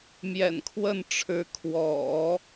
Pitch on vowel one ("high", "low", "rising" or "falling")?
low